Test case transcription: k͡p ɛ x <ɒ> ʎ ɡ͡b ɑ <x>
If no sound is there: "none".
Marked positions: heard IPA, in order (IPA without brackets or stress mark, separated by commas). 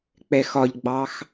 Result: ɒ, x